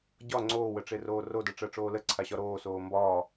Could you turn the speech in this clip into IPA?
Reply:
ɟ ɒ ŋ͡ǀ oː w ə ʈ͡ʂ e r oː r o d ɜ ʈ͡ʂ ɜ ʈ͡ʂ oː l ə ǀʰ a ɕ ɒ ɾ oː s oː m b ɒː

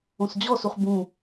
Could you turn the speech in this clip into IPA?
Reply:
õ s d͡ʑ ɔ s u χ b ũ

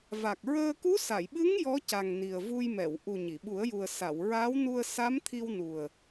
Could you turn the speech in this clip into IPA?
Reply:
v a˨˩ k̚ ɹ əː˧ k u˧˥ s a˨˩˨ j ɓ ɨ˧˥ ŋ j ɔ˧˥ c a˨˩ ŋ n i˨˩ ə̯ v u˧ j m ɛ˨˩˨ w ʔ u˨˩ ɲ i˨˩˨ ɓ u˨˩˦ ə̯ j u˨˩ ə̯ s a˨˩˨ w ɹ aː˧˥ w n u˧ ə̯ s a˧˥ m t̪ʰ i˧ w n u˨˩ ə̯

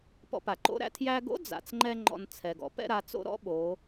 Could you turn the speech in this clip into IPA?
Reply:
p ɔ̰˧ p a˩ ǃ o̰˧˥ ɾ æ̰˩˧ tʰ j æ˧ ɡ o̰˧˥ d͡z a̰˩ t͡s ŋ͡ǃ ɛ˥ ŋ͡ǃ ɔ̰˧ n t͡sʰ ɛ˩ ɡ ɔ̰˩˧ p ɛ̰˥ ɾ a˩˧ t͡s o̰˥ ɾ ɔ̰˧˥ ɓ o˩˧

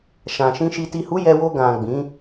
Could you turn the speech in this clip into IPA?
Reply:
ʃ ã˨ ʃ ĩ˧ ʃ i˨ t i˨ h u˨˦ j ɛ˧ w o˧ ɡ ã˨ ɡ͡b ĩ˨˦

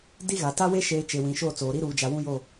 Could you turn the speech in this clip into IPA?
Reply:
d i˦ ɣ a˨ t a˦ w e˦ ʃ eː˨ t͡ʃ e˨ w ĩ˨ ʃ o˦˨ t͡s oː˨ ɾ i˦ ɾ uː˨ d͡ʒ a˨ w ũ˦ j o˦˨

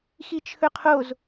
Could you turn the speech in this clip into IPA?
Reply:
x i t͡ʃʰ ɵ qʰ o z

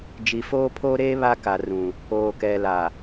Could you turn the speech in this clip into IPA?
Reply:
d͡ʒ i˨ f oː˦ pʰ oː˦ ɾ eː˦ β a˦ k a˨ r ũ˨ | oː˨ k ɛ˨ l a˨

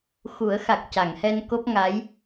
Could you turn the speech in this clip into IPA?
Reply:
x u˨˩˦ ə̯ x a˨˩ k̚ c a˨˩˨ ŋ h ɛ˧ n k o˦˥ p̚ ŋ a˧˥ j

